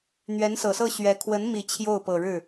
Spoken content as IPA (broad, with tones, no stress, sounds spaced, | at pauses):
n̪ ɥ ɛ˧˥ n s ɤ˨˩ s ɤ˥˩ ɕ ɥ ɛ˧˥ kʰ w ə˧˥ n m i˨˩ t͡ɕʰ j o˥˩ ʊ̯ p ɤ˨˩ ɻ ɻ̩˥˩